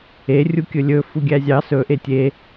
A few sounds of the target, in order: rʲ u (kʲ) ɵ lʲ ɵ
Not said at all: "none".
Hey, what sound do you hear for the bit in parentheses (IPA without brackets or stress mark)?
kʲ